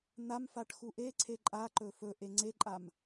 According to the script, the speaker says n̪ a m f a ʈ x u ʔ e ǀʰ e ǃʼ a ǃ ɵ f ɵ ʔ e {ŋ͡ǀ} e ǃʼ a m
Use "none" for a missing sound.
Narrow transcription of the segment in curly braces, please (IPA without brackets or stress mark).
ŋ͡ǀ